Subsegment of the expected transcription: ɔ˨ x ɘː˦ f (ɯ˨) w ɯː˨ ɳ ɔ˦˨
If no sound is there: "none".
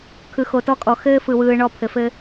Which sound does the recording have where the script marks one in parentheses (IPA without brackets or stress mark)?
ɯ˨